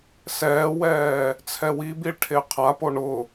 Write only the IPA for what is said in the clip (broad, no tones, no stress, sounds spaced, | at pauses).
s ɛː w ɛː | t͡sʰ ɛ w i b i ɭ ʈʰ e qʰ a p o ɳ ʊ